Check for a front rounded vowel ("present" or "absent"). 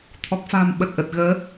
absent